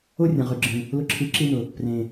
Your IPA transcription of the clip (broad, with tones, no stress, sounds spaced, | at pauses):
o˦ rʲ ɐ̃˨ ʁ ʉ˨ ɡ͡ǁ ĩ˨ | l ʊ˧ ǁʰ i˨˦ ǁ i˧ n ʊ˨ | p r ẽ˨